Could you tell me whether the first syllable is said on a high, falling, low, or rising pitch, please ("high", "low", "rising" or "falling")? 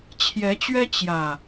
rising